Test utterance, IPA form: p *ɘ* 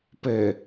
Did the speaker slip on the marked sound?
no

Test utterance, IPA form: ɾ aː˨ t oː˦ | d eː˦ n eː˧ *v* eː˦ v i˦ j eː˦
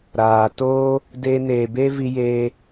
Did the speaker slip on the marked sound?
yes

